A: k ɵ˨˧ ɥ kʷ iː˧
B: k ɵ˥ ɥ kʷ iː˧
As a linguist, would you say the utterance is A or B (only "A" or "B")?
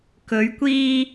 A